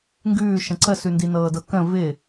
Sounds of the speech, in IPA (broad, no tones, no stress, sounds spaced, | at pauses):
ŋ ɡ ʉː ʃ ə̃ ǀ ə s ʉ n d i n ɤː d ɤ k ə̃ v ɪ